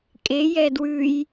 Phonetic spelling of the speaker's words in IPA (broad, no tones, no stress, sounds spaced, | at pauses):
kʼ e j ɛ d w ʉ j